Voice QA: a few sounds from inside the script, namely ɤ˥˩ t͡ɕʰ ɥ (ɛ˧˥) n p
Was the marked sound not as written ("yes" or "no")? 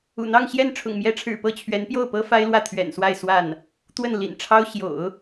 no